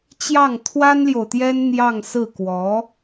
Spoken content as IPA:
t͡ɕjɑ˥˩ŋt̪ʰwa˥nljo˨ʊ̯t̪jɛ˥n n̪jɑ˥˧ŋsɹ̩˥˩kwɔ˧˥

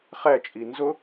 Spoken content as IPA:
χɛ t͡ʃʼinzʊ

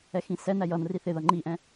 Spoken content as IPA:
ɛxĩsɛnæ jʌnri θɪðʌ ŋ͡ǃiʔɛ̃

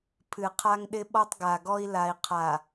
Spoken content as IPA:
pʰɨ˨qʰa˦ŋɗɪ˦ ɓɔ˦tˤɡa˨ɡɔ˦i̯ la˨i̯ qʰa˨

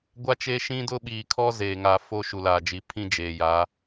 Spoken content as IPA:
ɡʷa˦t͡ʃeː˦ ʃĩ˦dʊ˦ ɓiː˨kʰɔ˦ zeː˨ŋa˨fo˦ ʃu˨laː˨d͡ʒi˨˦ pʰĩ˦d͡ʒeː˨ ja˨˦

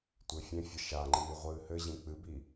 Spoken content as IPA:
tʷefʲẽfʲʌ ʃaŋ͡ǃiː ʁʷɨːhɘʑĩ k͡pɨbi

